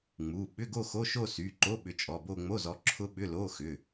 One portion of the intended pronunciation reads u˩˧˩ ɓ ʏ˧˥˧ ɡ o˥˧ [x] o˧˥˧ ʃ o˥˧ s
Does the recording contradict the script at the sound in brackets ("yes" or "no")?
no